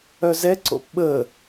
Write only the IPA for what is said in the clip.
œzɛǀo̰p ɓə

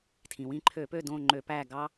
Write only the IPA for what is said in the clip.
tʰĩ˩wĩ˦˨ǃʰø˧˩˧pø˦˨ dõ˦˨ŋ͡ǃø˧˩˧ pæ˦˨ ɡɑ˦

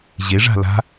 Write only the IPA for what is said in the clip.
ʑe ʐa̤la̤

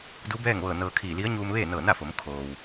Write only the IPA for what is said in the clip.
du˧˥bɛː˥˨ŋʋɤː˧˩ nɤː˧kʰiː˧˩ li˧˥ə̯ɲuː˧m ʋeː˥˨nɤː˧˩na˥˨fo˩˧m kʰoː˩w

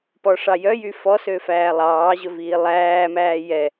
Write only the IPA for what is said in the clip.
pɔʂɑjœjy fɔsø fæːlˠɑːʑɵ viːlˠæːmæː jɛ

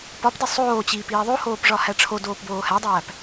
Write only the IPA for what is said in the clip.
pɒpdi sˤoːt͡ɕiːp iːðˤohoːp ʐɒhæʈ͡ʂʰodoːp boːhædˤæːp

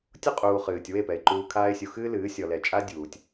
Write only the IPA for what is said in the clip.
tʲo˦qʼuː˨ χɨː˨tʲwe˦˨pɛ˨ɪ̯ ǃuː˨kʰaː˧ɪ̯sʲu˨ xɨː˦lɨː˨˦ sʲɔ˨lɛ˨t͡ʃʼa˦ dʲuː˨tʲ

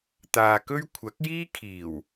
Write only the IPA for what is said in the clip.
t̪aː˨kɵ˥ɥ kʷʰɐ˨˥k̚jiː˥kʰiː˨˩w

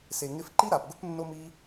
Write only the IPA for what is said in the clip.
se˨ ŋɪ˧fǃi˦ɾa˨pɡʊ˦p nːo˦mi˦

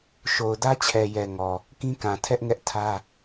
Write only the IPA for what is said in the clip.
ʃo˨ʊ̯dä˦t͡ɕʰɛ˨jɛ˨ ŋɔ˨ | kĩ˦kã˨tʰɛ˦ʔŋɛ˦ʔ tʰä˦

